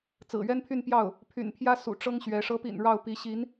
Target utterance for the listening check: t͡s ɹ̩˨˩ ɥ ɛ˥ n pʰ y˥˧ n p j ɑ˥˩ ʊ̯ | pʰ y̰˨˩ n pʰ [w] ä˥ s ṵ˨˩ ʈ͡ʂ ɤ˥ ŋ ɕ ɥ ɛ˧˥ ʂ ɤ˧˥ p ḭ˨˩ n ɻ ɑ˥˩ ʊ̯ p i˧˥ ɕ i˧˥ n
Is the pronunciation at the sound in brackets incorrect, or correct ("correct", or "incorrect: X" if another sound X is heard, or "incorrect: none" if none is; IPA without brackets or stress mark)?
incorrect: j